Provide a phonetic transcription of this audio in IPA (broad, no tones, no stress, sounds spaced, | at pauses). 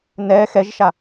n ɛ x ɛ ʒ ʃ a